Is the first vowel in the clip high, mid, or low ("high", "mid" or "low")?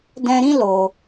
mid